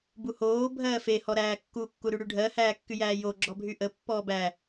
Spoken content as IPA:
buhoː bʱɜːfe hɔɾæːkːu kːuɾyɽyɖʱɜ hæːkːyjæːjo ɡ͡ǁɔbʱyʔə pːɔːbæ

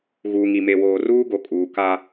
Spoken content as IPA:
ɣuː˨ŋi˨ me˨woː˨ ruː˦ɡo˨kʼuː˨ka˦

